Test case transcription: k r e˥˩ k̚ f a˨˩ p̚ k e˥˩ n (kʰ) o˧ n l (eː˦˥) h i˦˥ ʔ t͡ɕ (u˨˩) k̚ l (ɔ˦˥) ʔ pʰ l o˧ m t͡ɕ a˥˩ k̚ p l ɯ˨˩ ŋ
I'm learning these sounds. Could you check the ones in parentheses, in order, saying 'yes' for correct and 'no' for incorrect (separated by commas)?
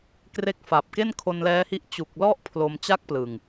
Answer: yes, no, yes, no